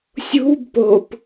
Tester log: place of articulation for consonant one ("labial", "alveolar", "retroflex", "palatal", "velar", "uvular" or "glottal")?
alveolar